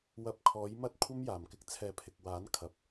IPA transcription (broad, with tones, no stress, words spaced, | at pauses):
wɐ˧p̚kʰɔː˨˥jmɐ˥t̚ kʷʰɐ˥mjaː˨˩mkɪ˧k̚ t͡sʰɛː˨˥pʰɪ˨k̚waː˨˥nkʰɐ˨p̚